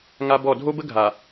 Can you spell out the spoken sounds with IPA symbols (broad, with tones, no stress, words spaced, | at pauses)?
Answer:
ŋa˦bɔ˦˨ dʱo˦bə˦ ɡʱa˨